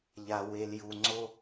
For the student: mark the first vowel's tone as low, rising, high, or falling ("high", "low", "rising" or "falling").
low